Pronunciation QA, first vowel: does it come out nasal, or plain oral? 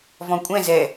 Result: nasal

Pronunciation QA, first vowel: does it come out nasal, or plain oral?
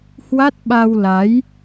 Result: oral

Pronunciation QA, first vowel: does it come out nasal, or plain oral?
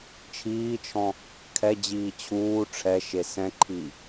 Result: oral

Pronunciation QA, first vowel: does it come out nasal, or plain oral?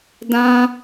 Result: nasal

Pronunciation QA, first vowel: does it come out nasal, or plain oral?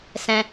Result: nasal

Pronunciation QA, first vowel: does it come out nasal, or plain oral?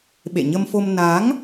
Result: oral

